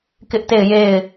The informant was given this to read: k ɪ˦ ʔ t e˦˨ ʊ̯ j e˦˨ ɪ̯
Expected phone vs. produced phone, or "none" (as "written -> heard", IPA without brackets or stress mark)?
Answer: ʊ̯ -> ɪ̯